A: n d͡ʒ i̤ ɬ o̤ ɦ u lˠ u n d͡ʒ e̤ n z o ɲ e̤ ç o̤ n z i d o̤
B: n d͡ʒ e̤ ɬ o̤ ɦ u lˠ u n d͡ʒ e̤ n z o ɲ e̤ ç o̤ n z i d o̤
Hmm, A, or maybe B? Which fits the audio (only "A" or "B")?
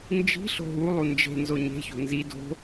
A